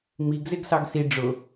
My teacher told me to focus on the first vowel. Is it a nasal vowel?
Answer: no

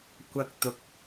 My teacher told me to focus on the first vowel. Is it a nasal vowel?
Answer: no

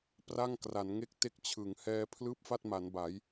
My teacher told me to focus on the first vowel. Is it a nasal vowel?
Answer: no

